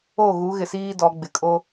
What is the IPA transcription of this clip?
o˦˨ ɣ u˨˦ ɣ ɪ˨ s iː˦ d ɔ˨˦ ɡ͡b ɪ˨ kʼ o˦

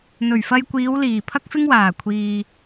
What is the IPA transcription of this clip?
n̪ ɵ˨˩ ɥ f ɐ˧ j kʷ iː˨˧ w l iː˨˩ pʰ ɐ˥ k̚ f ɪ˥ ŋ w aː˨˩ kʷʰ iː˨

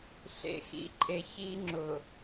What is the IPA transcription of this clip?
ɬ ḛ˦ x ḭ˦ ǃʼ e˦ ç i˦ ŋ͡ǁ ʊ˨

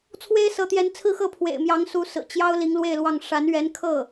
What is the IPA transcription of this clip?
t͡sʰ w e˥ ɪ̯ s ɤ˧˥ t̪ j ɛ˧˥ n t͡sʰ ɹ̩˥˧ x ɤ˥˩ pʰ w ḛ˨˩ ɪ̯ m j ɑ˧˥ ŋ s u˧˥ s ɹ̩˨˩ t͡ɕ j ɑ˥ ʊ̯ l i˧˥ ŋ l w e˥˧ ɪ̯ l w ɑ˥˩ ŋ ʂ a˧˥ n ɥ ɛ˧˥ n kʰ ɤ˥˩

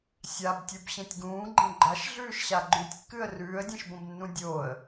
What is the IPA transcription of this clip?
sʲ a b tʲ u b ɕ ẽ tʲ ɡ ũː ɡ͡ǃ ẽ ɡ͡ǃ a ʃ ɮ ʉː ʃ ɕ a ɡ͡ǃ ʉ tʲ kː ɨ ə̯ r ʉː ə̯ dʲ ẽ ʃ b õ b nː ũ dʲ oː ə̯

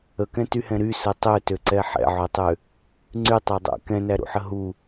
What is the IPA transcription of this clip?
ə k ɛ̃ t y h ɛ̃ ɾ y s ə tˤ ø t ø ǀ ɛ ħ ɛ̰ ʕ ɵ tˤ ø | ŋ͡ǀ y tˤ æ dˤ æ̰ k ɛ̃ n æ ɾ ṵ ħ ə ɦ u

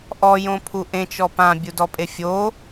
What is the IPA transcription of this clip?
ʔ ɔ j õ pʰ u ʔ ẽ t͡ʃ ɔ p ã bʲ u d ɔ pʼ e fʲ o

